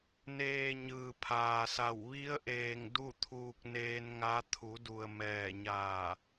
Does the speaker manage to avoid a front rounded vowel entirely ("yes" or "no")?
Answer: yes